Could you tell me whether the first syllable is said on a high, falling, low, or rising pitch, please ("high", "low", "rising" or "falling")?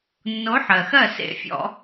rising